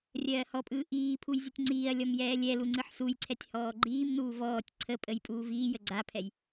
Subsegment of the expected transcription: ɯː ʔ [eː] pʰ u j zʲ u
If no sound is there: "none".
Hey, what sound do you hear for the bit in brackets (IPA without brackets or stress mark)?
iː